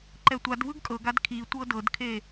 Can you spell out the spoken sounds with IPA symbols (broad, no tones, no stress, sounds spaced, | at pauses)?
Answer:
ǃ ɛ tʷ a d v ɯ ɡ kʼ ɤ ɡ a d kʰ i tʷ ɤ d ɤ d kʰ e